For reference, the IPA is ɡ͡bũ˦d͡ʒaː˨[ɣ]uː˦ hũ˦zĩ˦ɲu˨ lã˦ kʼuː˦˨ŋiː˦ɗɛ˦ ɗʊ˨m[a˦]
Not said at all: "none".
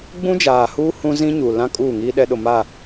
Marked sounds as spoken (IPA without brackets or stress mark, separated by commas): h, a˦˨